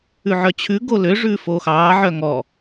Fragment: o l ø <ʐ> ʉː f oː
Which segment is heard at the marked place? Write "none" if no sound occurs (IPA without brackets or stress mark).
ʐ